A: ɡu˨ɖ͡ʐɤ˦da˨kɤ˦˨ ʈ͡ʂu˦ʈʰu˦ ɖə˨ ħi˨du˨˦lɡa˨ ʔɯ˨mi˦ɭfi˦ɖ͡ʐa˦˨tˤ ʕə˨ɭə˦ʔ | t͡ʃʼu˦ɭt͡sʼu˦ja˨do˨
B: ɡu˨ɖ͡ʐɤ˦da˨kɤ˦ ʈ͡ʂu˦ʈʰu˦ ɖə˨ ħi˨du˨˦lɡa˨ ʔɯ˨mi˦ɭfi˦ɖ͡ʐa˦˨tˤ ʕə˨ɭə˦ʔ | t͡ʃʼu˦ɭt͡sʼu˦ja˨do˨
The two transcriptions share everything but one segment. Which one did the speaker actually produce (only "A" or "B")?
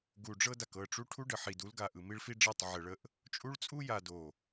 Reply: A